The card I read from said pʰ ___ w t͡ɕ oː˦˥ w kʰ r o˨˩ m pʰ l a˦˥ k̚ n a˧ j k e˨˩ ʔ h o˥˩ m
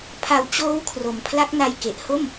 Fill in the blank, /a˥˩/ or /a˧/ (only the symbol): a˧